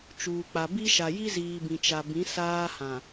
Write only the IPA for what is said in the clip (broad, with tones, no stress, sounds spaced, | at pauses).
t͡ʃ uː˨ k͡p a˨ b i˦ ʃ a˨ j i˦ z iː˨ b ĩ˨ t͡ʃ a˨ b ĩ˨˦ s aː˦ h ã˨